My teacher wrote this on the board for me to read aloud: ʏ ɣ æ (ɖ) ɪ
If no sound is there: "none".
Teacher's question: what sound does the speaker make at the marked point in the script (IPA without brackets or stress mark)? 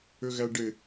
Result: ɖ